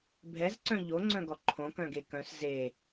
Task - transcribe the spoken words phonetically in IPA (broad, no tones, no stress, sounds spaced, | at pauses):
bʱ ɛ z ǀ œ̃ ʎ o ŋ͡ǀ œ̃ ɡ ɔ ǃʰ õ k œ̃ ɡ e k œ̃ s z e